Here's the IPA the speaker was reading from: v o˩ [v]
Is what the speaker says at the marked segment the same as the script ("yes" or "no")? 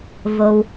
no